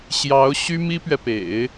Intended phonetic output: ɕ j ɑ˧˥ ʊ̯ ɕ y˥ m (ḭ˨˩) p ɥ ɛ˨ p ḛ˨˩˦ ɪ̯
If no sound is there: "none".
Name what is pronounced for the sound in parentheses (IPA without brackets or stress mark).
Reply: i˥